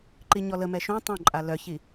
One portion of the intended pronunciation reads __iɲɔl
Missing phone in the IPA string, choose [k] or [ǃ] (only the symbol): ǃ